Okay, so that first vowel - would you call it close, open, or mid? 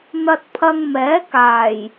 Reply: open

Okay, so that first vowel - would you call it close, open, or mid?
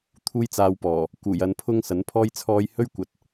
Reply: close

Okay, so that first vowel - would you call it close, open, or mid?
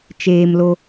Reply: mid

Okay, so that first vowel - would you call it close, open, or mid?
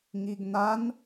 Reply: close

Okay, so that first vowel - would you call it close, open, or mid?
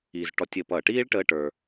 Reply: close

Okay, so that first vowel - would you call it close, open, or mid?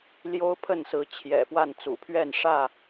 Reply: mid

